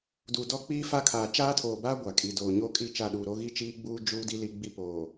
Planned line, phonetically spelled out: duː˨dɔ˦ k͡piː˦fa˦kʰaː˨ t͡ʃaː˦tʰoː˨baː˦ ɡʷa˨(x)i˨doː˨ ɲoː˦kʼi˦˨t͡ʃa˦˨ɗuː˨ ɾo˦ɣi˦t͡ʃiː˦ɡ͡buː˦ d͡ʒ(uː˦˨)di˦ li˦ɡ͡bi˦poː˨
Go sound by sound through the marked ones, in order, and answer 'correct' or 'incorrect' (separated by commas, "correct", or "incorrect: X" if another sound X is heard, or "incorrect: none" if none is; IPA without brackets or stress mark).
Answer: incorrect: kʼ, incorrect: uː˦